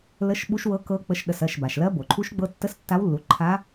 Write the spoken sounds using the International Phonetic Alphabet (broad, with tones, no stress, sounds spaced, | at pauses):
l ə˧˥ ʃ ɓ u˧˥ ʃ w ɤ˧˥ k ɤ˧˥ k͡p ə˧˥ ʃ ɗ ə˩˧˩ s ɜ˩˧˩ ʃ b a˩ ʃ l ɜ˧˥ b o˩ ǃʰ u˧˥ ʃ ɡ͡b ɤ˧˥ tː ə˧˥ s tː a˧˥ w lː u˩˧˩ ǃʰ a˧˥